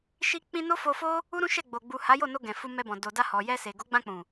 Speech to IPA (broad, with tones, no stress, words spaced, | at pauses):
ʃi˧k͡pĩ˧ no˦fo˧fo˦ | u˦ɾũ˦ʃɛ˦˨ɡ͡bo˨ ɡ͡bu˨ ha˨˦jo˦˨no˧ ɡɛ̃˨fu˧mɛ˧bɔ̃˨ do˨ da˧hɔ˨jɛ˧se˨ ɡo˨˦ɡ͡bã˧k͡pũ˨